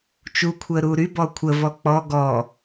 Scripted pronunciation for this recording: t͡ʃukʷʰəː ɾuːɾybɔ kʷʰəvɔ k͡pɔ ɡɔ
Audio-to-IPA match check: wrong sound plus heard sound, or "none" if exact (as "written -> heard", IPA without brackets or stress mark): none